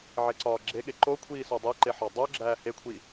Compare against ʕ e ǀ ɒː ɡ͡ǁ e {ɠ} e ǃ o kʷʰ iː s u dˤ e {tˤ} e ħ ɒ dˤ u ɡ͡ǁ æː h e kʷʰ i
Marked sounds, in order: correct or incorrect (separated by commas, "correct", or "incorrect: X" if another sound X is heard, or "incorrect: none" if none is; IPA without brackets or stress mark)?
correct, incorrect: ǃ